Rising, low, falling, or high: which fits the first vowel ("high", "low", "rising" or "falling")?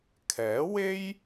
rising